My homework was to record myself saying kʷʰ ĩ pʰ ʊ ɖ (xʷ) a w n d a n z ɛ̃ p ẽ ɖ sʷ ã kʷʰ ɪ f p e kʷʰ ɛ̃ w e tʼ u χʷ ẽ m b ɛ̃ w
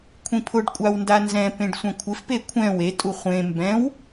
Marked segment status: incorrect: kʷʼ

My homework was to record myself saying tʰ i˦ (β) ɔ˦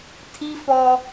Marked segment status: incorrect: f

